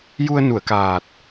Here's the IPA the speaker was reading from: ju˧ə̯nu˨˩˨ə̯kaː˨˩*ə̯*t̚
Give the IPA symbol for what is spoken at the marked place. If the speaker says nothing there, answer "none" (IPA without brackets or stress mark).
none